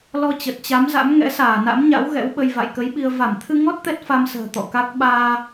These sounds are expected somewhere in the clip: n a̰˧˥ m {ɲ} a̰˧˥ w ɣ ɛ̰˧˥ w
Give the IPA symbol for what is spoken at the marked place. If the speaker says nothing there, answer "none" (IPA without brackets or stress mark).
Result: ɲ